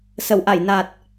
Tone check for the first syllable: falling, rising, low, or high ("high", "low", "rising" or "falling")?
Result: low